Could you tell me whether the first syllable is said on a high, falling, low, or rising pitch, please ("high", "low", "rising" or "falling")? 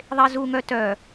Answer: high